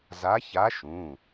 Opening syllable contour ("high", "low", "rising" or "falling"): rising